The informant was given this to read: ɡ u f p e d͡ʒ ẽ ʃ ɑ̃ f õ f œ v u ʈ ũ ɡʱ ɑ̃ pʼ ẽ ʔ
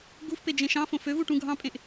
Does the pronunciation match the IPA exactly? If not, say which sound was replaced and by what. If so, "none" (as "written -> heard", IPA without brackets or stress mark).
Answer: œ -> ø